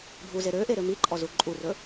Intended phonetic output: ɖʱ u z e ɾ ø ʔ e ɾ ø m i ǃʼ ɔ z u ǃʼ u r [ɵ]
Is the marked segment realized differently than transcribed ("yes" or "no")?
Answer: no